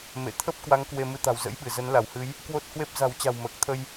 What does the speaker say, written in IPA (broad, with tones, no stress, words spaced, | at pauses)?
mḛ˧˨ t̪ʰə˦˥p̚kwa˨˦ŋ kwe˧mɨ˧ t̪a̤˨˩wzə̰˧˥jɓɨ˧˩ zə˨˦nla˧˩whɨ˨˦j | kwo˦˥t̚hwe˦˥p̚ za̤˨˩wt͡ɕa̤˨˩w məː˨˩k̚t̪ʰə˧j